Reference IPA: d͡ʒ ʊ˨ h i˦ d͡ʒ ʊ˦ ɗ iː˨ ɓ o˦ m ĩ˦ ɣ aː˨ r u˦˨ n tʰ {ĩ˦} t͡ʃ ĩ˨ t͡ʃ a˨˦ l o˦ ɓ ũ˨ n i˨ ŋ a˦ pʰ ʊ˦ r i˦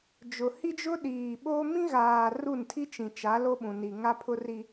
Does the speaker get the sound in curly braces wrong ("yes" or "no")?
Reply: yes